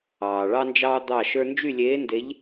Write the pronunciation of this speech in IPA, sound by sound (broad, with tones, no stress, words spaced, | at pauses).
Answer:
ɑː˨ ɭɑ˥nd͡ʒɑː˥ d̪ɑ˥˧ʃə˞˥ nd͡ʒy˥˧lʲeː˧˥nde˧˥ʎ